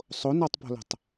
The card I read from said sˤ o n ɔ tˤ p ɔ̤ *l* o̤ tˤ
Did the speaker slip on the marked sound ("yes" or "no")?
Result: no